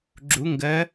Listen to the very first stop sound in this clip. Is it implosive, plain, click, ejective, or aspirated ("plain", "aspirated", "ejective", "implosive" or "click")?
click